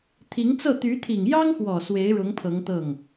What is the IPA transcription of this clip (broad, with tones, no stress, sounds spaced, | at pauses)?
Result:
t̪ʰ i˧˥ ŋ t͡s ɤ˥˩ t̪ y˧˥ t̪ʰ i˨˩ ŋ j ɑ˥ ŋ x w ɔ˨˩ s w e˧˥ ɪ̯ ɻ ʊ˧˥ ŋ pʰ ɤ˧˥ ŋ t̪ ɤ˥˩ ŋ